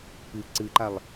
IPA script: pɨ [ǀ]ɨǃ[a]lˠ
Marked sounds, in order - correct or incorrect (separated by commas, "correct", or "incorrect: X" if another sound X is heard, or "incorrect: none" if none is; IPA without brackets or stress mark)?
correct, correct